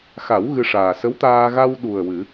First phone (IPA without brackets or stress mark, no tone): x